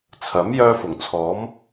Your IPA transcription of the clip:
t͡sʰ ɐ˨˥ m j œː˧ f ʊ˨˩ ŋ t͡sʰ ɔː˨˥ m

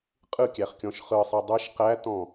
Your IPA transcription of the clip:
qʼ ɯ kʲ æ χ kʲ ɔ̃ ʃ χ ɯ sˤ ɤ dˤ ɯ ʃ q æ t ɔ̃

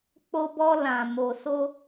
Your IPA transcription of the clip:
k͡p o˧ b ɔ˧ l ã˨ m o˨ s o˧

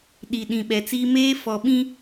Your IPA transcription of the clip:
ɗ i˨ ɗ ĩ˨ ɓ ɛ˨ t͡s iː˦ m eː˦ f ɔ˨ ɓ ĩ˦

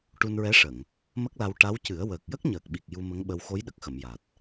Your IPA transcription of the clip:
ʈ u˧ n ɹ ɛ˧˥ ʂ ə˨˩˨ ŋ | m ə˦˥ k̚ l a˧ w ʈ a˧˥ w c ɨ˨˩˦ ə̯ w əː˨˩ k̚ j ə˦˥ k̚ ɲ əː˨˩ k̚ ɓ i˨˩ k̚ j u˧ m ə˧˥ ŋ ɓ ə˧ w x o˧˥ j ɗ ə˨˩ k̚ x ə˨˩˨ m j a˨˩ t̚

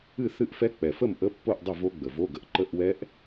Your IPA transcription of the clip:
ɨ˥˨ θ ɨ˦˥ ʔ f ɛ˦˥ k͡p ɛ˨˩ f ə˥˨ m ʔ ə˧˥˧ pː o˥˨ ʔ dˤ ə˥˨ v o˦˥ ɡ͡b ə˨˩ v o˧˥˧ ɡ ə˨˩ ʔ ǃ ə˧˥˧ ʔ w ɛ˦˥ ʔ

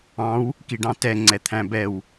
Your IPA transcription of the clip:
ɑ̃ w | k i ɖ ɑ̃ t ɛ ŋ͡ǀ ɛ t̪ʰ æ̃ b ɛ w

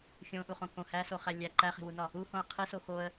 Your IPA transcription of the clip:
xʲ õ ʔ u χ õ k õ h æ s o χ æ lʲ æ ǃ æ χ e̤ w u n ɒ | u h õ ə̯ qʰ i s o x o ə̯

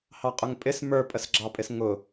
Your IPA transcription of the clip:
h ɑ qʼ ʊ ŋ pʼ ɪ s m ə˞ pʼ ə s ɡ͡ǁ ɑ pʼ ɪ s ŋ ʊ

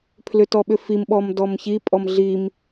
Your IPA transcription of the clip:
pʰ l ʏ t ɔ ɓ ʏ f i m ɓ ɔ m d ɔ m ç i pʼ ɔ m ɮ i m

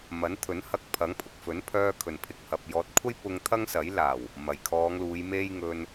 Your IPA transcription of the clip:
m ɐ˨˥ n t̪ʰ ɵ˨˥ n h ɐ˧ k̚ pʰ ɐ˨˥ ŋ pʰ ʊ˨ k̚ f ɵ˨˥ n pʰ œː˧ kʰ ɵ˨˩ n pʰ ɪ˨ k̚ h ɐ˨ p̚ j ɔː˨ t̚ kʷʰ ɐ˥ j p ʊ˧ ŋ t̪ʰ ɐ˥ ŋ s ɐ˨˥ j l aː˨˩ w | m ɐ˨˩ j kʰ ɔː˨˧ ŋ l uː˨˧ j m e˥ j ŋ ɵ˧ n

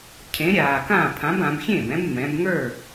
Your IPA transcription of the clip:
cʰ ẽ˨˥ ɾʲ aː˨˩ k ã˥˩ pʰ ã˨˥ b ã˩˧ b xʲ ẽː˥˩ b ɛ̃˨˥ b m ɛ̃˩˧ b ŋ ə˞˥˩

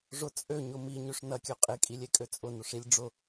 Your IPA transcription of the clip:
ʐ ʊ t͡sʼ ø ɲ ʊ m i ɲ ø ʂ n ɐ kʲ ø qʼ e kʼ i lʲ e kʼ ø t͡sʼ ʊ n ʊ ʂ i lʲ ɖ͡ʐ ʊ

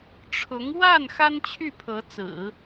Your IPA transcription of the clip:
ʈ͡ʂʰ ʊ˧˥ ŋ w a˥˩ n x a˥ n t͡ɕʰ y˥˩ pʰ ɤ˧˥ t͡s ɹ̩˨˩˦

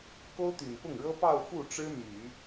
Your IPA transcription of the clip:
k o˥ ʊ̯ t̪ y˨˩ n p ʊ˥˩ ŋ ɻ ɤ˥ p ɑ˥˧ ʊ̯ f u˥˩ ʈ͡ʂ ɻ̩˥ m y˨˩˦

